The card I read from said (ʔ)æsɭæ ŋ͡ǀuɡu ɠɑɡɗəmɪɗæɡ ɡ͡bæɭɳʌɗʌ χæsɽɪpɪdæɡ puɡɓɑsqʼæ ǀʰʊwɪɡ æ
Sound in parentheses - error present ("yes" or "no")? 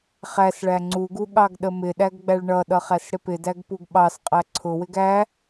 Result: yes